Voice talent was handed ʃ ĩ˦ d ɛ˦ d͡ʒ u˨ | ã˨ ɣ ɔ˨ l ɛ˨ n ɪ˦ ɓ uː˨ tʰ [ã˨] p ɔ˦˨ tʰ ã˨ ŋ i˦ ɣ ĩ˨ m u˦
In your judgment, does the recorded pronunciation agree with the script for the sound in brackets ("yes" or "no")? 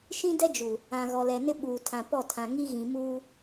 yes